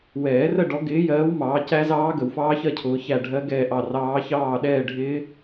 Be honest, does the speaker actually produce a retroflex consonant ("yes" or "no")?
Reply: yes